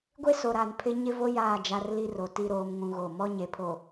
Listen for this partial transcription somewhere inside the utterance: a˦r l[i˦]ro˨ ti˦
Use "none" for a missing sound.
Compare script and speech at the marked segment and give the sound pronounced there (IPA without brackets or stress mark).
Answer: i˦